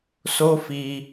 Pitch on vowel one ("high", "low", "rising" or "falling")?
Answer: high